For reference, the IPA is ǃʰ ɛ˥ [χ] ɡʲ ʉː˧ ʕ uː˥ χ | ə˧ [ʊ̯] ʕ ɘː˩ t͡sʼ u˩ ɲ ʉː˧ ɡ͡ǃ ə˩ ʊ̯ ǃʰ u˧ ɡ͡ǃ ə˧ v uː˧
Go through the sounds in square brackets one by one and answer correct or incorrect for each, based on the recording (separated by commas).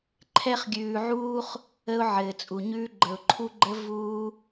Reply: correct, correct